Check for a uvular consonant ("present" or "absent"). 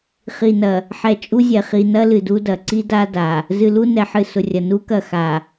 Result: present